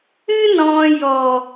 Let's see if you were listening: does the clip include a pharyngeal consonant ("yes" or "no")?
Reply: no